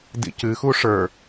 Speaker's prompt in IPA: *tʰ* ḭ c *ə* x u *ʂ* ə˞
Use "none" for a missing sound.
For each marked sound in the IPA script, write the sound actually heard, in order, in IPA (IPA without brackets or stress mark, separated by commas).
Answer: d, ɨ, ʂ